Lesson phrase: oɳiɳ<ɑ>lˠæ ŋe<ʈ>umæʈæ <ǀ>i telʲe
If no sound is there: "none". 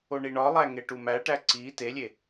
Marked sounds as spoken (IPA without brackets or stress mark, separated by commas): ɒ, ʈ, ǀ